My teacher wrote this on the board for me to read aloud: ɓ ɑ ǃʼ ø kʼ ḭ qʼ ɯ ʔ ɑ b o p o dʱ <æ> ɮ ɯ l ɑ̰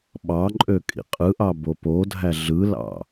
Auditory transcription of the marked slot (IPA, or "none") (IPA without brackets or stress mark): æ